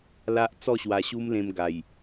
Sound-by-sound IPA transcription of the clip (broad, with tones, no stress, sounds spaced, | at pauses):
l a˦ ʔ t͡s ɔ˥˧ ɕ w a˧ ɕ u˦ m l ẽ˧ m ɡ a˨˩ j